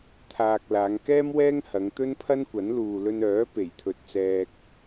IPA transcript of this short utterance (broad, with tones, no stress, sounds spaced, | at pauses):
t̪ʰ aː˧ k̚ l aː˨˧ ŋ k ɛː˥ m w ɛː˥ ŋ h ɐ˨˧ ŋ t̪ ɵ˥ n pʰ ɐ˥ n kʷ ɐ˨˥ n l uː˨ l ɵ˧ n œː˨˥ p e˨˩ j t̪ʰ ɵ˨ t̚ t͡s ɛː˧ k̚